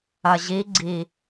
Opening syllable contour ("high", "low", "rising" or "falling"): low